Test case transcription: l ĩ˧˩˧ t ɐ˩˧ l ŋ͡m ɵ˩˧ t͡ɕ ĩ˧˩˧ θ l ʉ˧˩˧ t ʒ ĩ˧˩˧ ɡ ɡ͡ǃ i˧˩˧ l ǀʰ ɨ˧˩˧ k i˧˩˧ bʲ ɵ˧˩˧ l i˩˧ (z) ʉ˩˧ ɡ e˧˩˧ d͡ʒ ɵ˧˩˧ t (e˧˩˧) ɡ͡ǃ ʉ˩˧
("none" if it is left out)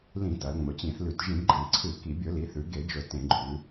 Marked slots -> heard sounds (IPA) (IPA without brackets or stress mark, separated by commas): θ, ẽ˧˩˧